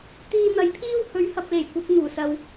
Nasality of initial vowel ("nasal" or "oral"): oral